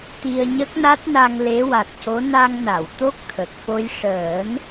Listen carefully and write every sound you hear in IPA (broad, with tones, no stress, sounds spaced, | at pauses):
t̪ i˧ ə̯ ɲ ə˦˥ k̚ n a˦˥ t̚ n a˧ ŋ l e˧˥ w a˨˩ t̚ c o˧˥ n a˧ ŋ n a˨˩˨ w t̪ o˦˥ k̚ t̪ʰ ə˨˩ k̚ f o˧ j ʂ əː˨˩˦ n